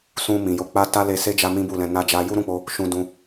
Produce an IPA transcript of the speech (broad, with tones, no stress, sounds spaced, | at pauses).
s ũ˧ m ĩ˨ j o˧ k͡p a˦ t a˦ l e˧ s e˦ d͡ʒ a˦ m ĩ˦ b u˦˨ l ɛ̃˧ n a˦ d͡ʒ a˦ j u˦ ɾ ũ˦˨ k͡p o˧ | ʃ ũ˧ d ũ˧